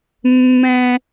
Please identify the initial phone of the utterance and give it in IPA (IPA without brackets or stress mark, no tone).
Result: mː